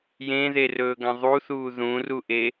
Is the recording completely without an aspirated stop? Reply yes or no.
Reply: yes